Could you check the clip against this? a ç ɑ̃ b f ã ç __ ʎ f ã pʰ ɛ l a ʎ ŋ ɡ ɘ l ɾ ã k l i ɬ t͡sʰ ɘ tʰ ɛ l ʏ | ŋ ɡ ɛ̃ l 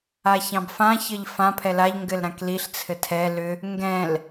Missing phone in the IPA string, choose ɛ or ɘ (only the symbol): ɘ